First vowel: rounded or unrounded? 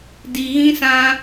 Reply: unrounded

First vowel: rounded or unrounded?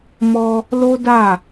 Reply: rounded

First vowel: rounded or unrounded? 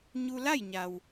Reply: rounded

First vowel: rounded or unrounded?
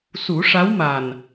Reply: rounded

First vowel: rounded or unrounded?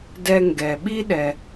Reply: unrounded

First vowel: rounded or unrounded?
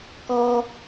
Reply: rounded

